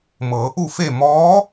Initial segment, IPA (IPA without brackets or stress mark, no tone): m